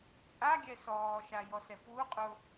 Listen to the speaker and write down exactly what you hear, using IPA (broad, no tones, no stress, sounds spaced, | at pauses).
t͡sʼ a ɡʲ ɛ s ɔː ʃ a j ɔ s ɛ p w u qʼ ʊ